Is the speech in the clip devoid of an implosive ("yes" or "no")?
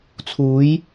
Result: yes